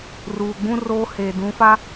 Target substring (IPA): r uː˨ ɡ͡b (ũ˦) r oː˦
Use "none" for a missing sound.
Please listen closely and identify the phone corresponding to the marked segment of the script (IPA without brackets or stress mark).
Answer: ũ˦